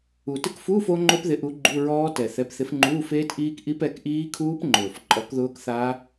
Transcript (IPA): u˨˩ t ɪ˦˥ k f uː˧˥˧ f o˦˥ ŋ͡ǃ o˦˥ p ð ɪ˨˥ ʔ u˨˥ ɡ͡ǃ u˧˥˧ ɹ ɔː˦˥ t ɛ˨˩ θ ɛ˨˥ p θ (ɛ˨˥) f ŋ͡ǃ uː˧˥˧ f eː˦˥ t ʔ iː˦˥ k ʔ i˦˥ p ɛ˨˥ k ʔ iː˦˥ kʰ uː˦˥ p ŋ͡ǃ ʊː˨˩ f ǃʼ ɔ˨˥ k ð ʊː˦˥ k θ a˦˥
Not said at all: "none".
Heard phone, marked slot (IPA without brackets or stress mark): ɪ˨˥